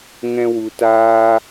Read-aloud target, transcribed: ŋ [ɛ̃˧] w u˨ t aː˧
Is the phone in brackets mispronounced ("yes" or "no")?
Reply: no